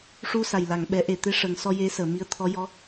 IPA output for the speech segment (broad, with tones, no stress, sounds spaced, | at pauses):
ʂ u˧ s a˨˩ j l a˨˩˨ ŋ ɓ ɛ˨˩˦ ʔ e˨˩ t̪ e˧ ʂ ə˨˩˨ ŋ s ɔ˧ j e˧˥ s əː˨˩˨ m i˧˥ ə̯ t̪ʰ ɔ˧˥ j ɔ˧˥